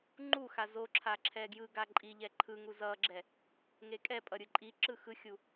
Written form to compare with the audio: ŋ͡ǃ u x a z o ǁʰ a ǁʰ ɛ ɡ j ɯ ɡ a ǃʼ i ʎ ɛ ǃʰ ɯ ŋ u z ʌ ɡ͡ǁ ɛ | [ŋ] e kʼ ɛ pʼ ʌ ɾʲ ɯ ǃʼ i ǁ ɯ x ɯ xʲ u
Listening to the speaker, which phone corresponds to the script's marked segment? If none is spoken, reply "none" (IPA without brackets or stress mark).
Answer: ŋ